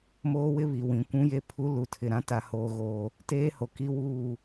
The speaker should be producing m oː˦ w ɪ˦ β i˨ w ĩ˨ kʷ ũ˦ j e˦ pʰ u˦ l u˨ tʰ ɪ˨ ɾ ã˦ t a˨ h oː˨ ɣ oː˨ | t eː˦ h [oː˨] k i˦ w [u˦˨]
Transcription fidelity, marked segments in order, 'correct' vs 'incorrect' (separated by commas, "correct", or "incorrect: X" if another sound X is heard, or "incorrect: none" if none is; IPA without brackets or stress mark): incorrect: o˨, incorrect: uː˦˨